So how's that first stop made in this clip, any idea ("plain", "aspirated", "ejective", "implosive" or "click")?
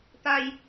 plain